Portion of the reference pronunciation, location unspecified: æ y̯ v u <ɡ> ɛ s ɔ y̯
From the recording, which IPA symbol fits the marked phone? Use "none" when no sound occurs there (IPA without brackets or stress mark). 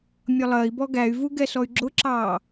ɡ